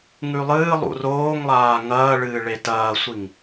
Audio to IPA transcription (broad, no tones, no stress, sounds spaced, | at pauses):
ŋ ʉ lˠ ɨː lˠ ṵ r oː ŋ lˠ aː ŋ ɐː ɭ ɨː ɭ e t ɐː sʷ i ŋ